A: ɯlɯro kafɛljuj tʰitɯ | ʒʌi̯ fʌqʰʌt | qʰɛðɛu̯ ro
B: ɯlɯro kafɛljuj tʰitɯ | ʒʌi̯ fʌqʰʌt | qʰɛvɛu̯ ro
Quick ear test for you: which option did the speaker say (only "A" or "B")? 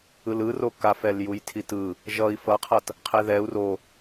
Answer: A